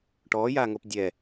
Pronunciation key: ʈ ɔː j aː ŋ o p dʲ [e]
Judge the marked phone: incorrect: ɛ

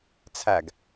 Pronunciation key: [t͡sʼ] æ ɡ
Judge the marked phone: incorrect: t͡sʰ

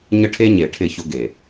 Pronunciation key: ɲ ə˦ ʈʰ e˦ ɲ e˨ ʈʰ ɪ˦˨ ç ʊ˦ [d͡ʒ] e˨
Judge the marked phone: incorrect: ɡ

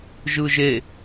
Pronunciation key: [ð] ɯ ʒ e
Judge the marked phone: incorrect: ʒ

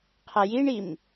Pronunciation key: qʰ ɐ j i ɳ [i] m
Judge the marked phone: correct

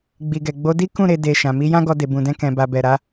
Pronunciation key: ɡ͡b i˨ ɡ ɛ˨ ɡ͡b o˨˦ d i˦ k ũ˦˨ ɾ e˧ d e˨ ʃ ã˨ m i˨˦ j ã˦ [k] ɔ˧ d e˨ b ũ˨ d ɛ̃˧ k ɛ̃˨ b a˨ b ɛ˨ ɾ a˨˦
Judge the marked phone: incorrect: ɡ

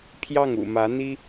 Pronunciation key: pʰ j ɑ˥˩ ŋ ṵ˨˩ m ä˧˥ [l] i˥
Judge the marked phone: incorrect: n̪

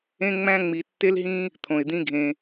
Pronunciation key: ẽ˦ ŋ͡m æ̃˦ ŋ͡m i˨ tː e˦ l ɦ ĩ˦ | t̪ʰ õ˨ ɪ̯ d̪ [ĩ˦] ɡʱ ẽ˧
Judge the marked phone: correct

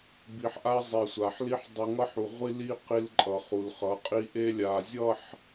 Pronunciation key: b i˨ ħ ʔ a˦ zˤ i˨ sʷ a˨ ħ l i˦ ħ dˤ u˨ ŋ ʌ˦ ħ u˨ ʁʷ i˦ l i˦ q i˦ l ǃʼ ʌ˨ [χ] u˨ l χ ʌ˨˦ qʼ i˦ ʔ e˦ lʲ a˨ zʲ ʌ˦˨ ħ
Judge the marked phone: correct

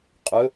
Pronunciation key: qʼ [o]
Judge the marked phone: incorrect: ɵ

